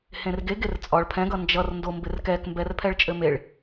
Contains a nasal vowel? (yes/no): yes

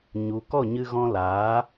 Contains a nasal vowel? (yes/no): yes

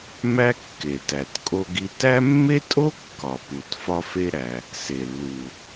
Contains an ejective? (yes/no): yes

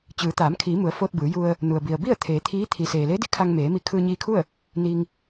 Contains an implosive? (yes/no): no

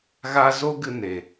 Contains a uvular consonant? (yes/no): no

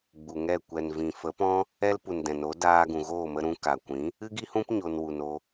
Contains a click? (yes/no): no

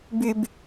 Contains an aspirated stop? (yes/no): no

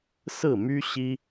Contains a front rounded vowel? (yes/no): yes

